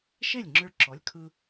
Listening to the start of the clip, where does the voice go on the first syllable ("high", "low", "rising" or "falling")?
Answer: falling